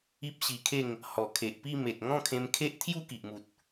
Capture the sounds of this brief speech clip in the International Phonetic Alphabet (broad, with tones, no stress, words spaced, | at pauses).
i˦p̚ɕi˧kʰe˥˧ŋ | hɔ˨˩kʰe˨ʔpi˥˧me˨t̚ ŋɔ̃˥˧kʰẽ˧mkʰe˦ʔ t̪ʰju˥˧ki˨ʔmu˨t̚